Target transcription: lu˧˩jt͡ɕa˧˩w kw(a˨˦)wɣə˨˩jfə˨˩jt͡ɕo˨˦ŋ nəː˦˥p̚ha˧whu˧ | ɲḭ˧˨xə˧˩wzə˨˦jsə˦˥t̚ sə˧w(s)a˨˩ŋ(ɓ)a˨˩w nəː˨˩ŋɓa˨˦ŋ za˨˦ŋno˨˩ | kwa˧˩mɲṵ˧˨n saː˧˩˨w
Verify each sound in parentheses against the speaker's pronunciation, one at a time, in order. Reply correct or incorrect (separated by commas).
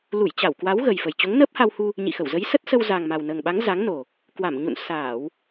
correct, incorrect, incorrect